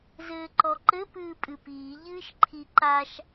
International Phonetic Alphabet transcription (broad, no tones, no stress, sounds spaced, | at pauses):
z ɘː ǃ ɔ ǃ ɘ p ɨː pʼ ɨ p iː ʎ ɨː ʃ ǃʰ i ǃ a ʃ